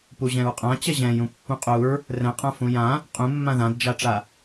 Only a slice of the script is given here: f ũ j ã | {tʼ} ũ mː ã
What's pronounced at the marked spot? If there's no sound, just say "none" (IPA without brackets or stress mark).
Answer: qʼ